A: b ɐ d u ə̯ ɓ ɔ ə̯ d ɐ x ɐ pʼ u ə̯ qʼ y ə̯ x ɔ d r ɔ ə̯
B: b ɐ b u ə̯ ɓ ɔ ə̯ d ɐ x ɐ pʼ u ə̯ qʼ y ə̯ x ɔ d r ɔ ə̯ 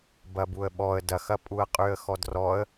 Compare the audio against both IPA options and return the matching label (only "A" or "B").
B